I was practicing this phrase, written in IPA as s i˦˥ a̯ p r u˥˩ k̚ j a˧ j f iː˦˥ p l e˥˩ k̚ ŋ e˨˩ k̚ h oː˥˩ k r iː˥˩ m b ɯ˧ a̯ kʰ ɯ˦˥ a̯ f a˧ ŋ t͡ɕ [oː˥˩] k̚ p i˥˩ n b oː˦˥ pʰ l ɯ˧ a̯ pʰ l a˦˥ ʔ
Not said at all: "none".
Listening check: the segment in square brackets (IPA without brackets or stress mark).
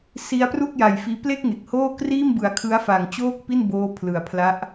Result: oː˥˩